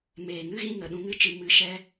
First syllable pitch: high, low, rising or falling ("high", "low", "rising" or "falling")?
low